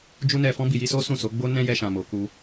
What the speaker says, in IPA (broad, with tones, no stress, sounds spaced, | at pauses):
d͡ʒ u˦ n ɛ˧ f ɔ̃˦ b i˧ j i˦ s o˦ s ũ˦˨ s o˨˦ ɡ͡b o˦ n ɛ̃˦ j ɛ˧ ʃ ã˨ m o˨ k u˧